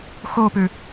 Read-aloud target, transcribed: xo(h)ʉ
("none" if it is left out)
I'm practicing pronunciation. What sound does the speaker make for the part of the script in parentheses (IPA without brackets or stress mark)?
p